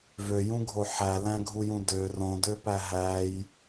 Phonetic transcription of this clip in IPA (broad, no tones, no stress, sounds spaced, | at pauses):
v ø j ũ ɡʱ o ħ æ l æ̃ ɡʱ u j ũ d ø r õ d ø p æ ɦ æ j